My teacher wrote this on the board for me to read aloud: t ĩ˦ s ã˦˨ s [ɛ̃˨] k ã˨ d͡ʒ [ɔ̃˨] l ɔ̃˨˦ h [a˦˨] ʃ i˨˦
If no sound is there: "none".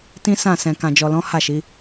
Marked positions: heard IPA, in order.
ɛ̃˨, ɔ˨, a˦˨

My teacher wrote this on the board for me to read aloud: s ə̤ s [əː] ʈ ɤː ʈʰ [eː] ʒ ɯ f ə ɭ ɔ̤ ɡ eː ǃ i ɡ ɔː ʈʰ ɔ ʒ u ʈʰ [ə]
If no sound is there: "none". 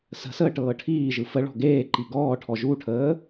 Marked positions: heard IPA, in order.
əː, iː, əː

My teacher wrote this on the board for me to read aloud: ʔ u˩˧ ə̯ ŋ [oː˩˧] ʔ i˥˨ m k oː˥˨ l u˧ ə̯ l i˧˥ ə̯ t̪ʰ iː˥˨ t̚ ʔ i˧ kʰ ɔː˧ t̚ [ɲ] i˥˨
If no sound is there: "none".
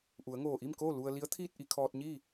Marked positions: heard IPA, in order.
oː˧˩, ɲ

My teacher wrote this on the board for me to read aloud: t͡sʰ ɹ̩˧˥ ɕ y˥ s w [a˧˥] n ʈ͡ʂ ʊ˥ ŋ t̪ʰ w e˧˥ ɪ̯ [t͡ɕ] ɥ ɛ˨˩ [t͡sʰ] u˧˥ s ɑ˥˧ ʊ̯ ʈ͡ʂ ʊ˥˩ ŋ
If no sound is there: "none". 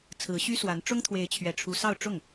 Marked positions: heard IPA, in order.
a˧˥, t͡ɕʰ, ʈ͡ʂʰ

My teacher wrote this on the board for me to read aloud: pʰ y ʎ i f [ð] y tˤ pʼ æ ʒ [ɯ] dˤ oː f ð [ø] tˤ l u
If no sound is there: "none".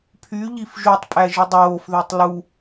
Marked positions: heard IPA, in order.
ʒ, ɯ, ø

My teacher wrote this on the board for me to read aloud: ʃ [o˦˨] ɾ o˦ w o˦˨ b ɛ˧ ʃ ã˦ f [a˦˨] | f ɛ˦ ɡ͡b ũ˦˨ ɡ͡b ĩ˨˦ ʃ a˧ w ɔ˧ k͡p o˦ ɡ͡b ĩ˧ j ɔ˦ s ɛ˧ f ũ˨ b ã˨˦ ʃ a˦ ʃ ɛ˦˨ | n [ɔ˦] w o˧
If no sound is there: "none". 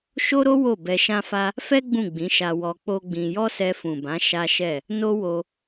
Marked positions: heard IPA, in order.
o˦, a˦, o˦

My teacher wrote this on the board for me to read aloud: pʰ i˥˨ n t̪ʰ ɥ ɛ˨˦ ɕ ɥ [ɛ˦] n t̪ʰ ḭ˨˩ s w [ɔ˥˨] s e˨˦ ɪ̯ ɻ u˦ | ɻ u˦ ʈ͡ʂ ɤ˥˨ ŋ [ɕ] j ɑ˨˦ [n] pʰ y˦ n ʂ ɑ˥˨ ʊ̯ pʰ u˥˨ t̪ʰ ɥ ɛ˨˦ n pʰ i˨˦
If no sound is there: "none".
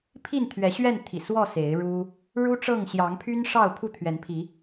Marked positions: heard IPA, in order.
ɛ˥˨, ɔ˥˨, ɕ, ŋ

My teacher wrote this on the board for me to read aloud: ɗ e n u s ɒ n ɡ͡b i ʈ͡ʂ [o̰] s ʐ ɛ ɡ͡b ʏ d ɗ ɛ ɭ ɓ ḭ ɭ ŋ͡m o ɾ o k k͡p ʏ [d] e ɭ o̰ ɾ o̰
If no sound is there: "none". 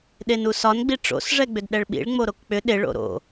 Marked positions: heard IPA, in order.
o̰, ɗ

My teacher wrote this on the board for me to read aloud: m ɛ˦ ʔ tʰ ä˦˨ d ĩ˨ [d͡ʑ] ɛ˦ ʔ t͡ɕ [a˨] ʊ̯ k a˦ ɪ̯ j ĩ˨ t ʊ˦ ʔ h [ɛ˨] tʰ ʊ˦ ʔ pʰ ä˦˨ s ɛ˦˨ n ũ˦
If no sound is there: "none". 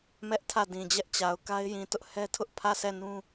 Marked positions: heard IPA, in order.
d͡ʑ, a˨, ɛ˦

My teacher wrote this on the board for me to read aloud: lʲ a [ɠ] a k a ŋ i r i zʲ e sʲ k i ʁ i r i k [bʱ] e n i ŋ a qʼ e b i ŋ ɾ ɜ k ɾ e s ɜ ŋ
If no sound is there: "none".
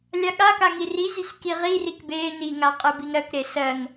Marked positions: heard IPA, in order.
ɠ, b

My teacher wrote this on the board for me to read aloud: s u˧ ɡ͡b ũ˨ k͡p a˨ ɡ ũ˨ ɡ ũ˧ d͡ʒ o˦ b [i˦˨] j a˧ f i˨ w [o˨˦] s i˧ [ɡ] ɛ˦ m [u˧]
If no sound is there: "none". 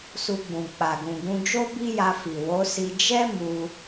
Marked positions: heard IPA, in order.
i˦, o˨˦, d͡ʒ, u˧

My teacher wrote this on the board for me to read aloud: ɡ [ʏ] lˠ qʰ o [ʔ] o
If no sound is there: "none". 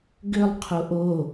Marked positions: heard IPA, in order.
ʏ, ʔ

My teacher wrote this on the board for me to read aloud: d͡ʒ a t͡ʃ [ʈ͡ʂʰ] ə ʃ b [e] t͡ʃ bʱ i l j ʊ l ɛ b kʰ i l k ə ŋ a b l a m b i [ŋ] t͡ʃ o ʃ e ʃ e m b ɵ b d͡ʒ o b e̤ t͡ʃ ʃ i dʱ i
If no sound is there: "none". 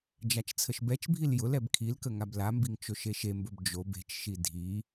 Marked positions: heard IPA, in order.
t͡sʰ, ɛ, ŋ

